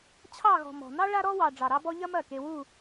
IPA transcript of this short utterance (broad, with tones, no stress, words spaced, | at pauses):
t͡ɕʰɑ˥˧ɣɔ̤˧ mɔ̤˧ nɑ˥ ɭa˥ɾɔ˥wɑ˧ ɖ͡ʐɑ˧ɾɑ˥bɔ˥ ʎɐ˥mɐ˥˩ke˧ wu˥˧